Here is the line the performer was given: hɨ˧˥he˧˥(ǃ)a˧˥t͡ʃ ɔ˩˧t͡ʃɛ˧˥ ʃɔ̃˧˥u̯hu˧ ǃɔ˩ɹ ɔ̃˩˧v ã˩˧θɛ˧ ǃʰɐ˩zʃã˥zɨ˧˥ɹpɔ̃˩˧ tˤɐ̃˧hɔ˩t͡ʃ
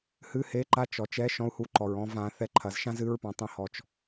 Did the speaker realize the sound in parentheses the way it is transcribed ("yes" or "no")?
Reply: yes